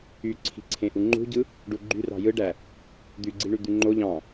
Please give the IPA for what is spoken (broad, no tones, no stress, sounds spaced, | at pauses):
y ǀʰ i̤ ǀʰ ẽ ʔ u ŋ͡ǃ ṳ ɟ ɯ | ɖ u ɡ͡ǃ y r ɑ̤ j ɯ ɖ æ | d̪ y ɡ͡ǀ i ɳ y d̪ y ŋ͡ǃ o ʎ ɑ̃